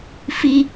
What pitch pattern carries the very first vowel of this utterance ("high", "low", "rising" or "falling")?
high